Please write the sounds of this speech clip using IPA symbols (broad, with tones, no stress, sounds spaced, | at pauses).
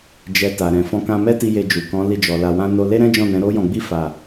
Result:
d͡ʒ ɛ˨ t a˨ ɾ ɛ̃˨ f ɔ̃˨˦ k ã˧ m ɛ˦ t i˧ j e˧ d͡ʒ u˨ k ɔ̃˨˦ l i˧ d͡ʒ ɔ˨ l a˧ w ã˦ n o˦ l e˦ ɾ ɛ̃˦ d͡ʒ ɔ̃˦˨ n ɛ̃˨˦ ɾ o˦ j ɔ̃˧ ɡ͡b i˦ f a˦˨